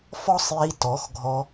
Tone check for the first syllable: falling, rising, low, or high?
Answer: high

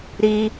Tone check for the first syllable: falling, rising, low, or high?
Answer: high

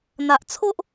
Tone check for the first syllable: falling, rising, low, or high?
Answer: low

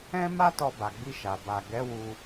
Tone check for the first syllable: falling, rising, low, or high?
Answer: high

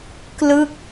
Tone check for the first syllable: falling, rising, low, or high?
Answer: falling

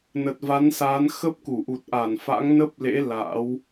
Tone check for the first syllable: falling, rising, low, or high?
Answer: low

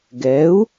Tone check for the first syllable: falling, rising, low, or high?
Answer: rising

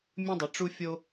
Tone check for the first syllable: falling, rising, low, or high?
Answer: high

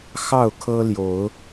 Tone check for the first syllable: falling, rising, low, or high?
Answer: falling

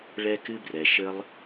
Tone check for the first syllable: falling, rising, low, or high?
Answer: high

